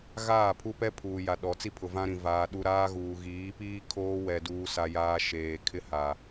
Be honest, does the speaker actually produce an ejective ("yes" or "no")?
no